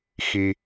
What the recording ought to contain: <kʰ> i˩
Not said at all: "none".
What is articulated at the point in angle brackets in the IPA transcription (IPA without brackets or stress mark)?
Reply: x